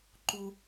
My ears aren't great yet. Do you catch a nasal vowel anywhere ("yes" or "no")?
no